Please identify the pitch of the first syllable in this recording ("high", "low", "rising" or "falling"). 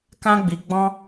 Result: high